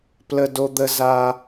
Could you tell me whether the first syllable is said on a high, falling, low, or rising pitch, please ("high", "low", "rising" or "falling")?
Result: high